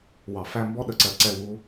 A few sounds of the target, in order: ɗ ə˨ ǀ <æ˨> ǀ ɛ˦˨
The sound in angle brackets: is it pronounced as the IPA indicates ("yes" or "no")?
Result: no